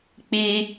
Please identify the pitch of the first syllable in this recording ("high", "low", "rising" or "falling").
high